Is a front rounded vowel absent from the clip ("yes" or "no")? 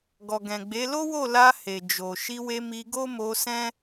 yes